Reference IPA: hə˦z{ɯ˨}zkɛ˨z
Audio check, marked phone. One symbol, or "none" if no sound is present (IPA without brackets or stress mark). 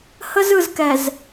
ɯ˨